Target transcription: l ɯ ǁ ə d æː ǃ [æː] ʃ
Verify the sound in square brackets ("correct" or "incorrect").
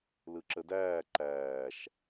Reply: correct